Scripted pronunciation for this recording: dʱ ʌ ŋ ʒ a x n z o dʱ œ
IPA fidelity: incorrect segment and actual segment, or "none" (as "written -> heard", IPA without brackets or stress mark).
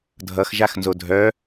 ŋ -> x